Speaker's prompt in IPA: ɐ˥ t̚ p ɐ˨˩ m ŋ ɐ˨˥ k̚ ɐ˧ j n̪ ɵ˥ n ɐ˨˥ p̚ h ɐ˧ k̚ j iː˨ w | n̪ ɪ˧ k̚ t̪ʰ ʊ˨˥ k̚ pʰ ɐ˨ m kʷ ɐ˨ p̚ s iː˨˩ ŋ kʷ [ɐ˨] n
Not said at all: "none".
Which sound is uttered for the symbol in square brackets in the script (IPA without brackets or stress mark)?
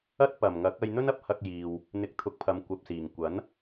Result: ɐ˨˥